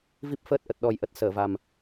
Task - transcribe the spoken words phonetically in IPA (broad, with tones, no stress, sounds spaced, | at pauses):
v i˦˥ p̚ f əː˦˥ t̚ ʔ ə˨˩ t̚ ɗ ɔ˨˩ j ʔ ə˨˩ t̚ s əː˧˩ v a˨˩ m